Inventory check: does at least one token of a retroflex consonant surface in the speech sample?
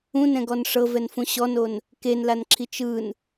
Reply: yes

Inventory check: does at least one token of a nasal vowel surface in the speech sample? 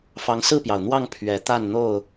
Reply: no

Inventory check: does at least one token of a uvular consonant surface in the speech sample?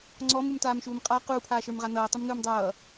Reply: yes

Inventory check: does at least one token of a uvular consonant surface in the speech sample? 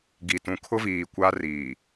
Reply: no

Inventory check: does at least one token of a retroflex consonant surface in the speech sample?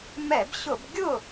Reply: no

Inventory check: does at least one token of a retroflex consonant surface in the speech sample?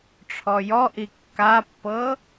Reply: yes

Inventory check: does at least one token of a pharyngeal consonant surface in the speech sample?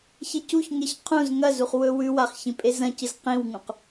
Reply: no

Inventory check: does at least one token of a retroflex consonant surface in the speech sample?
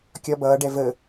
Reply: yes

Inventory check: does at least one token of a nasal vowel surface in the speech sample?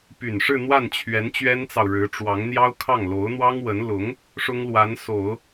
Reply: no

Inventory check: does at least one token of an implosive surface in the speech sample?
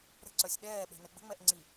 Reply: yes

